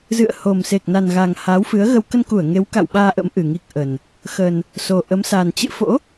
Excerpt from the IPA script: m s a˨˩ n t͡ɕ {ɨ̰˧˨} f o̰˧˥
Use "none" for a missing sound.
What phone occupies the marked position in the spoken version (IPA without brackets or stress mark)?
ɨ̰˧˨